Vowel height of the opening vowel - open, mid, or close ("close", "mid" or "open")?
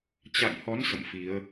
open